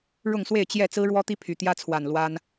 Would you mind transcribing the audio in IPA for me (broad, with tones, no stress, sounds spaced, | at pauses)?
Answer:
ɻ ʊ˥˨ ŋ s w e˥˨ ɪ̯ t͡ɕ j ɛ˥˨ t͡s ɹ̩˦ ɻ w ɔ˦ t̪ i˦ pʰ y˨˩ t̪ j ä˦ t͡sʰ w a˨˩ n l w a˦ n